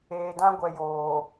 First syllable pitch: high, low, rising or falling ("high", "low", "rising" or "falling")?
low